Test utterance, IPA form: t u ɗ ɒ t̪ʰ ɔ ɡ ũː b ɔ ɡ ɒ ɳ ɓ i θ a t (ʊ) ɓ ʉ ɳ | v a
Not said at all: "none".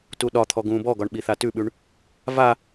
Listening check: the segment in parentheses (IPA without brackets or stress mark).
ʉ